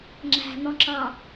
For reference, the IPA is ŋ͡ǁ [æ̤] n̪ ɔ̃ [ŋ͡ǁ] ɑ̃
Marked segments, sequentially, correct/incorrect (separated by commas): correct, incorrect